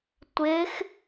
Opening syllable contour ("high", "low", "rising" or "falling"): rising